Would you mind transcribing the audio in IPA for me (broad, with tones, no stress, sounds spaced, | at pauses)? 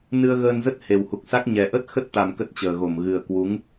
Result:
n ɨ˧ ə̯ ɣ əː˧ n z ə˦˥ t̚ h e˨˩ w h u˨˩ k̚ s a˦˥ k̚ ɲ ɛ˨˩ ʔ ə˦˥ t̚ x ə˦˥ t̚ t̪ a˨˩ m k ə˦˥ t̚ t͡ɕ əː˨˩ ɣ o˧˩ m ɣ ɨ˨˩ ə̯ k w u˨˦ ŋ